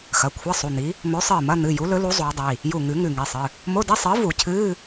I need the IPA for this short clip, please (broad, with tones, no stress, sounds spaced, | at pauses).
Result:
x ɐ˩˧˩ kʷʰ a˧˥˧ sˤ u˩˧˩ n̪ i˨˥ | m ɵ˨˥ sˤ ɨː˧˩ m ɐ˧˥˧ n̪ ɨ˩˧˩ j u˨˥ l ɵ˨˥ l u˨˥ zˤ oː˨˥ dˤ i˩˧˩ | j u˧˩ ŋ ʉ˨˩˦ ŋ ʉ˧˩ ŋ i˩˧˩ sˤ ɨ˩˧˩ | m o˧˥˧ d i˧˥˧ sˤ ɨː˨˥ v u˨˩˦ cʰ ɨː˧˥˧